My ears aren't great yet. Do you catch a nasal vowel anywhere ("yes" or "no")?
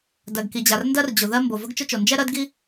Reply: no